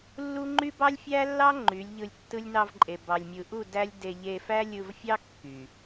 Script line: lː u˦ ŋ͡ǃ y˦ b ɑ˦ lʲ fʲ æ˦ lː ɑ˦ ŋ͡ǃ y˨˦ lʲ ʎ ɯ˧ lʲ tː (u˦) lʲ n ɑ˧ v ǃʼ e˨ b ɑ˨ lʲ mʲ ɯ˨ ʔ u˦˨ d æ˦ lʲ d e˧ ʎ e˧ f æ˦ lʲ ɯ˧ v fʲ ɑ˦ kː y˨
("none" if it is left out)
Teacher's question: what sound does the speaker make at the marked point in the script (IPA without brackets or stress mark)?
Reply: ɯ˦